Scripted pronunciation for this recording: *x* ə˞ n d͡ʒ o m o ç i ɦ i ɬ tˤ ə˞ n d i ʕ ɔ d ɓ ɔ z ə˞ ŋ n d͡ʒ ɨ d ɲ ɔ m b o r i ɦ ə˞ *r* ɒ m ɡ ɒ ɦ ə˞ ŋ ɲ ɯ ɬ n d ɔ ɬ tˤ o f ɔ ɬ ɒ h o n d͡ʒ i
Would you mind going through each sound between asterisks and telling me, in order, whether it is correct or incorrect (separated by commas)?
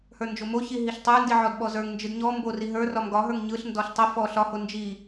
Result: incorrect, correct